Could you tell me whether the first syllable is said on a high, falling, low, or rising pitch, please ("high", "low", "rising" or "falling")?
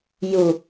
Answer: low